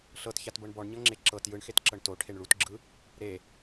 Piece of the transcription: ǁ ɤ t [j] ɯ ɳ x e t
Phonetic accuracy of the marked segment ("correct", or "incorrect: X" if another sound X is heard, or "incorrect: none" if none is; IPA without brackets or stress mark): correct